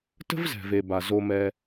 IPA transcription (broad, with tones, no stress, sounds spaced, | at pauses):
t ə̤˥ v z ɛ̤˩ v e˩ b a˩ z o˨ m ɛ˨